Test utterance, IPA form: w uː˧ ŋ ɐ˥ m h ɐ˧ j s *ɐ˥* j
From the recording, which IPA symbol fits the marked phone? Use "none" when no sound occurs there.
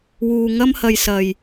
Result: ɐ˨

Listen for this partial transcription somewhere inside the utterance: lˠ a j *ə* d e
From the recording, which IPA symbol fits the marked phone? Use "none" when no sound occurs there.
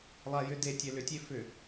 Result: ʏ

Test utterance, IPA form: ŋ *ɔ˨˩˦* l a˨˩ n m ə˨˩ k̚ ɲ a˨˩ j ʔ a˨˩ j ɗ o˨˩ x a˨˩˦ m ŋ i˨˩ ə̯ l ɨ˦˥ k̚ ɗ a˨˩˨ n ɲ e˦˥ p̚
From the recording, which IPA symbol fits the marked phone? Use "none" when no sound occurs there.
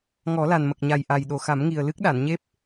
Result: ɔ˨˩˦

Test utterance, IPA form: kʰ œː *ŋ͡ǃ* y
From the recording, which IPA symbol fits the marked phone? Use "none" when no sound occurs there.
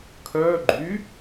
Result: ɡ͡ǃ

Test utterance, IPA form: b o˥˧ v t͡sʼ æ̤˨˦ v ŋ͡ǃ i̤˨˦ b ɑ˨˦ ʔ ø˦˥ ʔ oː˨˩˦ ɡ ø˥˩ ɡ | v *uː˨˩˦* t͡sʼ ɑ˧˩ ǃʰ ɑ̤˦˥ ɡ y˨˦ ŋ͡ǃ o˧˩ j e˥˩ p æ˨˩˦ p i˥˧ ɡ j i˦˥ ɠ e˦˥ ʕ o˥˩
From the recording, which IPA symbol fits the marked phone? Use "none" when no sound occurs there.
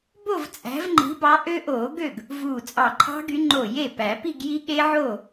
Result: uː˧˩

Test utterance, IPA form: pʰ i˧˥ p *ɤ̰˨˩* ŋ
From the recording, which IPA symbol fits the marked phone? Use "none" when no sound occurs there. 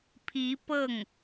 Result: ɤ˥˩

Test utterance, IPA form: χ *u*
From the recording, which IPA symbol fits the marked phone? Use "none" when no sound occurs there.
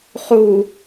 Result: u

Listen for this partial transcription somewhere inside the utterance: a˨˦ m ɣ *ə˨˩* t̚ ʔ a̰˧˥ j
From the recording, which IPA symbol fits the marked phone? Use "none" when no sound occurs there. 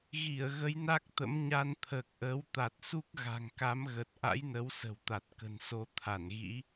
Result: ə˨˩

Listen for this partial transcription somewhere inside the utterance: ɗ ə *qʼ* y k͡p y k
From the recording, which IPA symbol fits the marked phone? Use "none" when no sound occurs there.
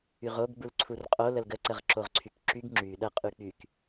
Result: qʼ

